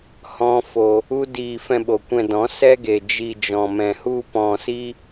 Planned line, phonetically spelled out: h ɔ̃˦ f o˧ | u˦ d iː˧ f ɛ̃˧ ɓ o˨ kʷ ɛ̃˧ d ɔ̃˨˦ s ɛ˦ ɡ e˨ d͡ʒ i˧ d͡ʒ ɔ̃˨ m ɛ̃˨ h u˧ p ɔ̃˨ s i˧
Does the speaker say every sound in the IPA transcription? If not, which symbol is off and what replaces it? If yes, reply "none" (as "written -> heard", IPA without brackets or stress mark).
none